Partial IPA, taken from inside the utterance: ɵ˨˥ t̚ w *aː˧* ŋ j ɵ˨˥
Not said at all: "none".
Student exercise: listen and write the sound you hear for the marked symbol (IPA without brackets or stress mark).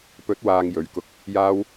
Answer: aː˧